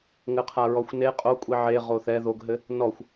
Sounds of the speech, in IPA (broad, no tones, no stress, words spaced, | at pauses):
ŋɘqʰaɹɔxʷne qʼokʷʼi ʕe ʁoθɛ ðoɡɦɘ | nɔxʷ